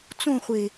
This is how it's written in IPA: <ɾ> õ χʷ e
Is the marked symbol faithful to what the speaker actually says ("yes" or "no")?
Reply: no